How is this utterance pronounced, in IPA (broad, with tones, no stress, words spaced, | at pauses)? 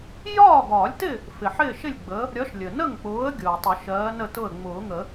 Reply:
jɒː˥˨ɡɒː˨˩˦lʲtɪ˥˨ | fɪ˩ħɪː˥˨ ʃɪ˥˨lʲɡ͡bə˨˦ | ɾʲɒ˨˦ʃlʲə˩ nə˥˨ŋk͡pʊː˨˦ə̯ ɡʲʊː˩ə̯tˤʊ˨˩˦ʃɜː˨˦ nə˥˨tʊ˥˨ə̯ ŋ͡mʊː˨˩˦ŋə˨˩˦